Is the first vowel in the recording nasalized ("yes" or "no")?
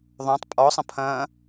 yes